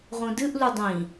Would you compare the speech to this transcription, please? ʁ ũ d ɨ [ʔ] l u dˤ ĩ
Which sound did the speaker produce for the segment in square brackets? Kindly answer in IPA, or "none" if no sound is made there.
ʔ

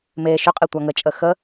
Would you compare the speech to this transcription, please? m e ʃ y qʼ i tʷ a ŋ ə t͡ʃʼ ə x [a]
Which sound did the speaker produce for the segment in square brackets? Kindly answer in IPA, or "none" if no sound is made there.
ə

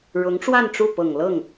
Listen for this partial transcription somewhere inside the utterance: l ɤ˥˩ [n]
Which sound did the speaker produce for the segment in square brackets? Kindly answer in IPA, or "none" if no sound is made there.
ŋ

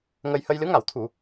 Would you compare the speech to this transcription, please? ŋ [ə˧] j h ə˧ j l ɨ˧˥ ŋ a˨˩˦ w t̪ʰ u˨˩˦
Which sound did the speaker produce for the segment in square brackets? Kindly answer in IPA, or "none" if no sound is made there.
ə˧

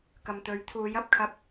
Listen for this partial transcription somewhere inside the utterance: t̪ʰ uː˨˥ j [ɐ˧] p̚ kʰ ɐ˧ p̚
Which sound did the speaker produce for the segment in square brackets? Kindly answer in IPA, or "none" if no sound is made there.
ɐ˧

